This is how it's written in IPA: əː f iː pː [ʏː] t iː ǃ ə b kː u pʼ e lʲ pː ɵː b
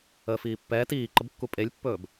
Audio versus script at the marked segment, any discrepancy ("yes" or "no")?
yes